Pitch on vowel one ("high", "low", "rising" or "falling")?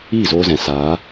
falling